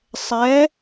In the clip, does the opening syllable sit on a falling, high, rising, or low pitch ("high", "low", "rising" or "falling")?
rising